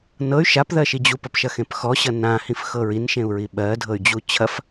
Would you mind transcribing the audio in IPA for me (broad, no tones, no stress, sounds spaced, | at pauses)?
n ɤ y̯ ʃ a p ð ɜ ʃ i d͡ʑ u p ɐ p ʃ ɐ x ẽ p x ɔ ɕ ɐ n ã h ĩ f x ɤ ɹ i n ʃ ẽ u̯ ɹ i ɓ ɜ dʱ ɤ y̯ d͡ʑ u t͡ɕʰ ɐ f